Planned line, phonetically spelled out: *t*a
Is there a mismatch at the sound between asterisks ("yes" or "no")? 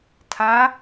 yes